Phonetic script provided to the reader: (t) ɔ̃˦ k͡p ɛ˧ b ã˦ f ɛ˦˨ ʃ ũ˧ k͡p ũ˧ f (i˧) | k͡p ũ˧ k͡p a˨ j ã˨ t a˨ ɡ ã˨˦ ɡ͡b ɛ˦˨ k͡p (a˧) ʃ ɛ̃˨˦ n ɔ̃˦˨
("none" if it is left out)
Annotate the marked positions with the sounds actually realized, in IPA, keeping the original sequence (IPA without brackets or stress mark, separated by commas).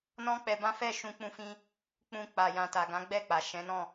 n, ĩ˧, a˨